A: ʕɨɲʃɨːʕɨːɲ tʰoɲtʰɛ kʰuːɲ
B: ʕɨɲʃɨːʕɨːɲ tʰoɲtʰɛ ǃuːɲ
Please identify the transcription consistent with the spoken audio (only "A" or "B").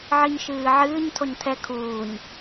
A